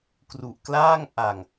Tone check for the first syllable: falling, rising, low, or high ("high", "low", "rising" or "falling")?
low